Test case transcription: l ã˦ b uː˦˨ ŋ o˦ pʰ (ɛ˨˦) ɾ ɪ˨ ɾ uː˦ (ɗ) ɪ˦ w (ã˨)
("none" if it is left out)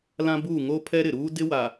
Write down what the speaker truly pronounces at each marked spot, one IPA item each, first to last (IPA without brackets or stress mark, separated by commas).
ɛ˦, d, a˨